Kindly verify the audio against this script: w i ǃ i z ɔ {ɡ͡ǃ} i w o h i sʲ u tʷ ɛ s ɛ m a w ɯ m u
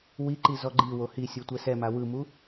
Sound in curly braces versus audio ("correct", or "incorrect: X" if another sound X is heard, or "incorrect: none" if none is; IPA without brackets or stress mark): correct